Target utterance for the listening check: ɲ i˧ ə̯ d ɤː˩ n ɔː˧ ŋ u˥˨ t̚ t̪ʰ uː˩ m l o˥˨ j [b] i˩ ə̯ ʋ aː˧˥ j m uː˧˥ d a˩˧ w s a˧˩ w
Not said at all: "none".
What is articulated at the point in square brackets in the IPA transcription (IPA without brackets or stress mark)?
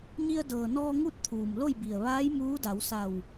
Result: b